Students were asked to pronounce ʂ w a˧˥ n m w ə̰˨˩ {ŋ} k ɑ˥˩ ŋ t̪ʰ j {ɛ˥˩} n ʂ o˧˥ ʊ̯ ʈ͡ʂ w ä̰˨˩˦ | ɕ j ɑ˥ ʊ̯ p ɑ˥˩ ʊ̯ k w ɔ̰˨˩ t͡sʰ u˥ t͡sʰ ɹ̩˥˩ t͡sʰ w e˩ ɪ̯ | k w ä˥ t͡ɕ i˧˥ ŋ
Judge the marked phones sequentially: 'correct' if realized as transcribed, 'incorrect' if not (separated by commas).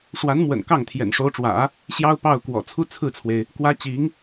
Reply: incorrect, incorrect